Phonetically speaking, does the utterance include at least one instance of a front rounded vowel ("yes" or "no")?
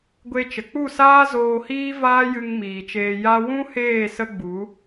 no